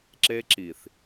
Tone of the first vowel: high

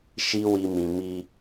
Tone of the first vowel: high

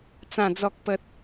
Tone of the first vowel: low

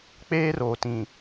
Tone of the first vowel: high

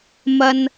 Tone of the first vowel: low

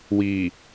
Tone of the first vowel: low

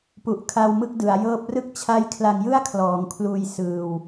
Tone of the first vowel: low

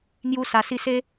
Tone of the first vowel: high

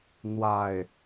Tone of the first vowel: low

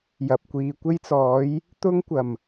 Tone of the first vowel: low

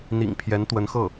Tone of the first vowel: low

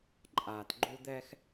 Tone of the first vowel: low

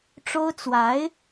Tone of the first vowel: high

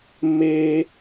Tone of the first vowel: high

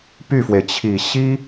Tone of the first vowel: falling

